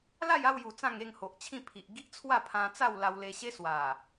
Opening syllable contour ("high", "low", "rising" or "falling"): falling